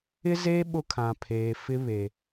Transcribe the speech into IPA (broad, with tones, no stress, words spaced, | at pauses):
ɪ˦zeː˦ ɓʊ˦kʰã˨pʰeː˨fɪ˦ βe˨